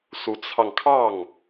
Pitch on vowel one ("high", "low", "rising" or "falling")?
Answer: rising